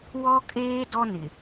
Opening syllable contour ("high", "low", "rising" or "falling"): high